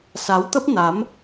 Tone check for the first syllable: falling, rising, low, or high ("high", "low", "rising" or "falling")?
rising